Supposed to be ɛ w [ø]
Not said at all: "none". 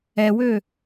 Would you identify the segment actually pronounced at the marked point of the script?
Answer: ø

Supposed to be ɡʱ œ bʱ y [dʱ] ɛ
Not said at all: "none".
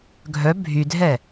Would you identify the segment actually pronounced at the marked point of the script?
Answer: dʱ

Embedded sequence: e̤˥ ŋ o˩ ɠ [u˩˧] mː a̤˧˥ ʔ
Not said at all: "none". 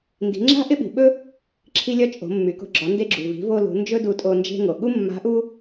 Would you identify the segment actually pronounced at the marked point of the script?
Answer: u˥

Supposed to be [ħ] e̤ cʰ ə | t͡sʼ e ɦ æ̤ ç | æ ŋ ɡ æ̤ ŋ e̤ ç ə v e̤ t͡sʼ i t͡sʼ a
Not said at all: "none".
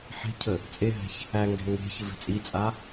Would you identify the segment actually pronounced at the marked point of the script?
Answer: ħ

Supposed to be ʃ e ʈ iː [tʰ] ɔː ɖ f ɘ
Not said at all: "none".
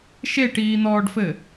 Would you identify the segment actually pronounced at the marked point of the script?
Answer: n̪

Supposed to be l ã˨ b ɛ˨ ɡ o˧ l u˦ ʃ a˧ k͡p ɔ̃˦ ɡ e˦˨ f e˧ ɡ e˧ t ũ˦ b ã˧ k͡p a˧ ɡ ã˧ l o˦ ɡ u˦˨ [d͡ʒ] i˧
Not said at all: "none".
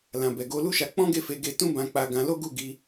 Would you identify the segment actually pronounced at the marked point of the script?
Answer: ɡ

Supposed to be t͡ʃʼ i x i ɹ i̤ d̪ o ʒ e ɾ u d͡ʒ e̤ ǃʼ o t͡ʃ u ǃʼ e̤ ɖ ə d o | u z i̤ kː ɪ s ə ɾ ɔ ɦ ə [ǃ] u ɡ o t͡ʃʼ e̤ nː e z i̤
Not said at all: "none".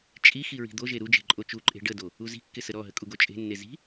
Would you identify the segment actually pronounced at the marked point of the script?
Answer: kʼ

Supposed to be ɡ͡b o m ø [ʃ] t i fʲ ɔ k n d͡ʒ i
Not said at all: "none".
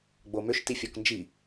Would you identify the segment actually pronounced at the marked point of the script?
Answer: ʃ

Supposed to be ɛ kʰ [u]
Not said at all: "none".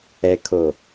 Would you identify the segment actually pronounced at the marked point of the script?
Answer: o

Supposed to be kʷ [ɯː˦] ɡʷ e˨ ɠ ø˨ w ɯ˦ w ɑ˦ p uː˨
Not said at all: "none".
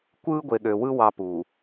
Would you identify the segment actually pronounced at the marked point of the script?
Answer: ɯː˦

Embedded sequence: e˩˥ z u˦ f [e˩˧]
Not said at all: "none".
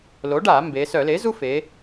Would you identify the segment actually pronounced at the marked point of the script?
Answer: e˩˧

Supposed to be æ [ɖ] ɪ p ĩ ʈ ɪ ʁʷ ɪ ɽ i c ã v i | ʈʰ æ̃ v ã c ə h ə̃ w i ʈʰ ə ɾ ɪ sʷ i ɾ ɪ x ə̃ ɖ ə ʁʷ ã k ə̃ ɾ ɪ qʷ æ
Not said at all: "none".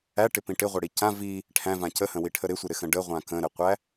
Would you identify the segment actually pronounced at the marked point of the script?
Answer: ʈ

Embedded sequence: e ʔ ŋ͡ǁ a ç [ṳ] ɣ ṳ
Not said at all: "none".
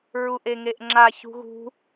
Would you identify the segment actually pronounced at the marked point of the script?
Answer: ṳ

